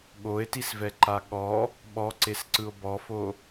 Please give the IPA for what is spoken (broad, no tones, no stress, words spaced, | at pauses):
ɠoe̯tisvɛǃa ɠɔ | ɓɔǀesǀɯo̯ bɔfo